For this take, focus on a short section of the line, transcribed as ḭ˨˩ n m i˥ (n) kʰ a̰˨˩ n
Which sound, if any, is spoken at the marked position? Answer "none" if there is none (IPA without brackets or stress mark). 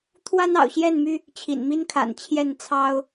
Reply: n